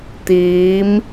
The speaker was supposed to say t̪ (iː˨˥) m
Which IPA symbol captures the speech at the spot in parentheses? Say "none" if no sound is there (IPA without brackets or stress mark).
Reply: iː˨˥